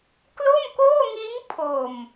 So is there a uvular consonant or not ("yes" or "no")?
no